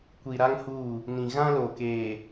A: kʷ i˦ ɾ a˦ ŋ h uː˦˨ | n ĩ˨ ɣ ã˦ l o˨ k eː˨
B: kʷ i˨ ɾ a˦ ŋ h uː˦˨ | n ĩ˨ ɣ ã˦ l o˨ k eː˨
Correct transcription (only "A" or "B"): B